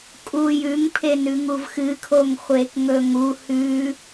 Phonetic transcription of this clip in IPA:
kʼ u j ʉ ŋ pʰ e n ʉ ŋ u v x ɨ kʰ o ŋ χʷ e k ŋ ɵ ŋ u h ʉ

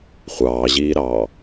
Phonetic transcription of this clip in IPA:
χʷ ɑː ʑ iː ɾ ɑː

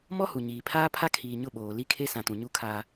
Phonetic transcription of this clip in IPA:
m ɔ˦ h u˨ ɲ iː˨ pʰ aː˦ pʰ a˦ kʰ iː˨ ɲ ʊ˦˨ ɓ oː˨ l i˦ kʰ e˦ s ã˨ t ũ˨ ɲ u˦ kʰ aː˦

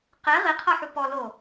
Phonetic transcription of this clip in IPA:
q e ʁ i qʰ ɤ ħ u p ɔ l o

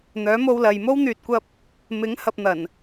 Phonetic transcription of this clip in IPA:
n̪ œː˨˥ m o˧ w l ɐ˨ j m o˥ w n̪ yː˨ t̚ kʷ ɐ˧ p̚ | m ɪ˨˥ ŋ h ɐ˧ p̚ n̪ ɐ˨˩ n

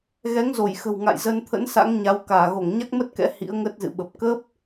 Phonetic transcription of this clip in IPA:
ɣ ɛ˨˦ ŋ z o˧˩ j x ə̤˨˩ w ŋ a̰˧˨ j z ə˧ n t̪ʰ ə̰˧˥ n s a̰˧˥ ŋ ɲ a˨˦ w k aː˧˩ ɣ o˧˩ ŋ ɲ a˦˥ k̚ m ə˦˥ t̚ k ɛ̰˧˥ h ḭ˧˥ ə̯ ŋ ə˦˥ t̚ z ɨ̰˧˨ ɓ ə˨˩ p̚ k ə˦˥ p̚

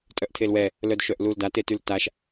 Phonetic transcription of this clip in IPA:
tʼ œ ʔ tʰ e l w ɛ | l œ d ʃ œ ʔ l u l d a t e t y l t a ʃ

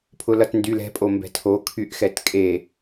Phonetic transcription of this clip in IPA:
pʰ ʊ l ʌ t n d y l ɛ̤ pʼ o m b ɛ̤ tʰ o kʰ y ʔ x ɛ t kʼ e

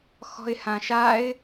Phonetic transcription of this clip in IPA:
x ɔ̤ ɪ̯ h ã ʃ a ɪ̯

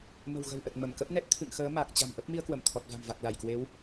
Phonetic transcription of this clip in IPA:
m ə̤˨˩ w ɣ ə̤˨˩ w ʔ ə˨˩ t̚ m ə˧˩ m k ə˦˥ p̚ n ɛ˦˥ t̚ t̪ʰ ɨ̰˧˨ ŋ x əː˨˦ m a˨˩ k̚ t͡ɕ a̤˨˩ m ʔ ə˦˥ p̚ m i˧ ə̯ k w ə˧˩ m t̪ʰ ɔ˨˩ t̚ v a̤˨˩ m v a˨˩ k̚ l a˧˩ j k w e˨˦ w

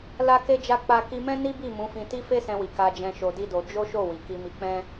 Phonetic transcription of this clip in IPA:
l a˧ k e˧ d͡ʒ a˧ k͡p a˧ k i˧ m ɛ̃˦ n i˦ b i˦˨ m ũ˨˦ f ĩ˧ t i˦ f e˦ s ɛ̃˧ w i˨ k a˧ d͡ʒ ɛ̃˧ ʃ o˧ d i˦ d o˧ d͡ʒ o˦ ʃ o˦˨ w i˨ k i˧ m i˧ k͡p ɛ̃˦

